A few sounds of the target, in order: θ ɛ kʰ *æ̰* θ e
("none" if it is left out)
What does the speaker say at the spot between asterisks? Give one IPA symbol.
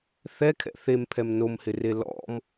ɛ̰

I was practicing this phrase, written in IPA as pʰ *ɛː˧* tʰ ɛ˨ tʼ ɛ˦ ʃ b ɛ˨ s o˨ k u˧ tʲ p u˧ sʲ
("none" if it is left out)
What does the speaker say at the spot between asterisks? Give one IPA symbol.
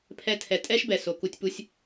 ɛ˧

